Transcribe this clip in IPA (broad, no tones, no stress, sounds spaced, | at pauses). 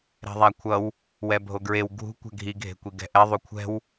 ɾ ɛ̤ ðˤ a kʷʰ ʌ w | w ɛ bʱ o ɡ ɹ e w ɡʱ ṳ kʷ ɛ̤ ɡʱ i ɡʱ e̤ kʷ i ɡ ɛ̤ ʔ ɛ ðˤ u kʷʰ ɛ̤ w